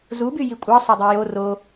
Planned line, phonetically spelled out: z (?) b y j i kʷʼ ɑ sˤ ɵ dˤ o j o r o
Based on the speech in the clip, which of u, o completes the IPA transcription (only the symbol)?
u